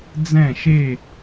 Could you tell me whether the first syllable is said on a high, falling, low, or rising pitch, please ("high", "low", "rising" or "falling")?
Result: falling